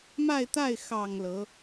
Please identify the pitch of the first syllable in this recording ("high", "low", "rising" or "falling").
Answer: falling